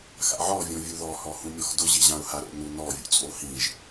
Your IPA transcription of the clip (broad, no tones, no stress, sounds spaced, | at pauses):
x a̰ ʕ ɔ vʲ õ vʲ u ð ɔ h ɔ h ũ mʲ ɔ x d ʊ ʑ i ʑ ã ʊ̯ h a ɾ o̰ n u n ɔ vʲ ṵ t͡sʼ o h ĩ ʒ